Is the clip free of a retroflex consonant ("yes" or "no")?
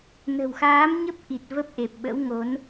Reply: yes